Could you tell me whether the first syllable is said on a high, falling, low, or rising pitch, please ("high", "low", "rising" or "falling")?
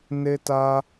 high